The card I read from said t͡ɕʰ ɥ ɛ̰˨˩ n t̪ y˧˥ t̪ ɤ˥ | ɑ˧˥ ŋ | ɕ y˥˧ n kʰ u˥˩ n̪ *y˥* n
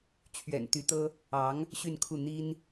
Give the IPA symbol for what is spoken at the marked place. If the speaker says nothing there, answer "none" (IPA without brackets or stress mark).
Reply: i˥